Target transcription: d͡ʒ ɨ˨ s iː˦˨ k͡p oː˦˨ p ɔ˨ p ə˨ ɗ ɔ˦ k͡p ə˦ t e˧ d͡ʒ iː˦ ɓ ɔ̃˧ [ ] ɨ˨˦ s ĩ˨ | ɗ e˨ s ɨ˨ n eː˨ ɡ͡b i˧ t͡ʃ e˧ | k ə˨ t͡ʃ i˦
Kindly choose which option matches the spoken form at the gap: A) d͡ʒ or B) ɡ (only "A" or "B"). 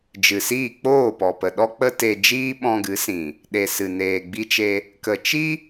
B